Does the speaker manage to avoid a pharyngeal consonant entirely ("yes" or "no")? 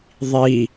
yes